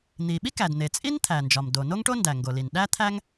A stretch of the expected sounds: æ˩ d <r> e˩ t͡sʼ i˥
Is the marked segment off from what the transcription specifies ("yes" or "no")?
yes